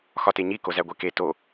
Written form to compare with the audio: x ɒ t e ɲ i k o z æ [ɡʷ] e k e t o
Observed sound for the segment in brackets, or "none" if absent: ɡʷ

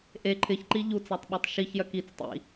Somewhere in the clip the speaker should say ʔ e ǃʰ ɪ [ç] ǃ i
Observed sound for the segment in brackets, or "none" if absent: ç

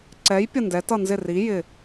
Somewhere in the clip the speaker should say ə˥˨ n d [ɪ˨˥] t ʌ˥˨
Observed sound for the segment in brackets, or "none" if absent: ɛ˨˥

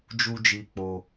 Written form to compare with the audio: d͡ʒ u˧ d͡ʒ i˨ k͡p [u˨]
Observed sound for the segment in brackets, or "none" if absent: o˨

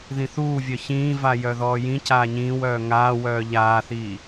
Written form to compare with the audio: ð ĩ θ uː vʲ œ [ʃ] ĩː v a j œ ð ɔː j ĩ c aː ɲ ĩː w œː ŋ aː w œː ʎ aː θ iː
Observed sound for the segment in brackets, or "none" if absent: ç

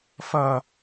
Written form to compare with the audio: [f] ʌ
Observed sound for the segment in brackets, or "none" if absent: f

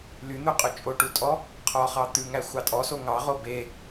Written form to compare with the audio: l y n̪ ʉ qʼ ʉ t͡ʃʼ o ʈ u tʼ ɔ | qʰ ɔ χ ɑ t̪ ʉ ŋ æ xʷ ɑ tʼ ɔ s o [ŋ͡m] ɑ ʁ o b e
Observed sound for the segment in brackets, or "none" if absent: ŋ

